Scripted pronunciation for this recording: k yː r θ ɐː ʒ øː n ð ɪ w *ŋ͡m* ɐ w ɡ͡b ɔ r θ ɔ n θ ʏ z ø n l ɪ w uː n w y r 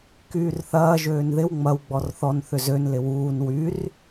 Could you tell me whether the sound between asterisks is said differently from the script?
no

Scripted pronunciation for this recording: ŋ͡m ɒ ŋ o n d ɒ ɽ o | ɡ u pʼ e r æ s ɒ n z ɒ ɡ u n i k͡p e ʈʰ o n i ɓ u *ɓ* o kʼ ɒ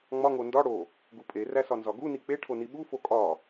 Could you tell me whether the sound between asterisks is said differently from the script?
yes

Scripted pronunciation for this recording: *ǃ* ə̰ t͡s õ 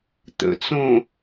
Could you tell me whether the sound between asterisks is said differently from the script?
yes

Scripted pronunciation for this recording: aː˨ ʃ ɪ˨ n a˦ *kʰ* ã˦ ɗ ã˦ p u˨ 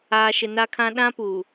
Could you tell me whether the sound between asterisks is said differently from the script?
no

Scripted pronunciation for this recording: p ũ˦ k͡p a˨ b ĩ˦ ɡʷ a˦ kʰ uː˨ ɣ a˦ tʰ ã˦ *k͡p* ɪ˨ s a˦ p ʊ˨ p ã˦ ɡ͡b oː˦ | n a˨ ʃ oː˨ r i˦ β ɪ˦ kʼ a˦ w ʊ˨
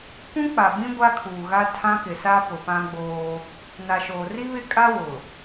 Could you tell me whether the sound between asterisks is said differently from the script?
yes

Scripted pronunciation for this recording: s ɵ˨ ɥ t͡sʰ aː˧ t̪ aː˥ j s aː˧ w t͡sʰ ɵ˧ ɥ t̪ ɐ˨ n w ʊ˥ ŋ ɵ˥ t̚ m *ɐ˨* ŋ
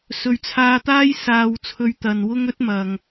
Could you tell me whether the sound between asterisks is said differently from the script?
no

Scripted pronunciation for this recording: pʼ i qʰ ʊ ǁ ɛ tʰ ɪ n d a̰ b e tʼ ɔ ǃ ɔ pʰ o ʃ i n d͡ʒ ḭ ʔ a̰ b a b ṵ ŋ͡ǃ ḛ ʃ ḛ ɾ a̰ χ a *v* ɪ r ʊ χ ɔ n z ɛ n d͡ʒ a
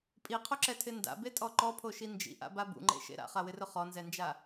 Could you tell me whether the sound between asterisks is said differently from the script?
yes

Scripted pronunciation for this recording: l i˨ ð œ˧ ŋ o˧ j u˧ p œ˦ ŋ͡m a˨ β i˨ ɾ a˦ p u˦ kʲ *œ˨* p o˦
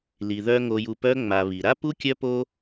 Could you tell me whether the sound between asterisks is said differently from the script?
yes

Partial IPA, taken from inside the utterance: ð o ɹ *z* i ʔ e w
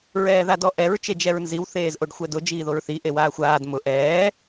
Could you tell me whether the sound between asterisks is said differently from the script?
yes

